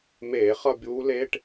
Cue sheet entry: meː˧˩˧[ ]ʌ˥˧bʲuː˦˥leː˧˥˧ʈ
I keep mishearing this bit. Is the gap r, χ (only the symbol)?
χ